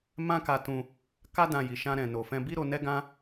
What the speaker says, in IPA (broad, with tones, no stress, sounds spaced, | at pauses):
m ã˦ k a˧ t ũ˧ | k a˦ d ã˧ j i˨ ʃ ã˧ ɾ ɛ̃˨ n o˨ f ɛ̃˧ b i˦ ɾ o˧ n ɛ˦ ɡ ã˦